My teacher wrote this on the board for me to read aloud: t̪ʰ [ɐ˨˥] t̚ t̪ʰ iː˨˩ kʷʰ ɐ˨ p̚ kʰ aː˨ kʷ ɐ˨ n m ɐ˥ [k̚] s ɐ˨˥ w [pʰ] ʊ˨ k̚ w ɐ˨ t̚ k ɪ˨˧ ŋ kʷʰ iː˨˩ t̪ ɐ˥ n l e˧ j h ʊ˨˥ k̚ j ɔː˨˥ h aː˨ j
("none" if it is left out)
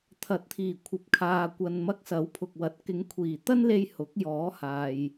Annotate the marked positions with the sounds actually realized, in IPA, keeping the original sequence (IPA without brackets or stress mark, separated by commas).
ɐ˨˥, k̚, pʰ